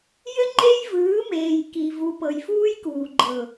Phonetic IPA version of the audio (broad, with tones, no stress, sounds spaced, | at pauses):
j ɘ˦ ŋ͡ǃ e˦ j v ɯː˨˦ m eː˨ j k i˨ v u˨ p ɤ˨ j f uː˦ j k uː˨ ɡ͡ǃ ɤ˨